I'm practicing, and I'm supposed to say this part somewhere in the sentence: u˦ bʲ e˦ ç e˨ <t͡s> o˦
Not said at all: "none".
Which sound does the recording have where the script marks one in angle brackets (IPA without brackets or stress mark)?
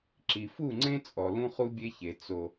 t͡s